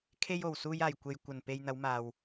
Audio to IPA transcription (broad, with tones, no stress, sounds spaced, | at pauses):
kʰ e˧ j o˨˩ w s uː˧ j aː˨˩ j kʷ e˨ j kʷ ɐ˨˩ n p e˧ j n̪ ɐ˨˧ w m aː˨ w